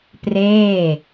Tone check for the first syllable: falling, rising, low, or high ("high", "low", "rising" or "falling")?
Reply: falling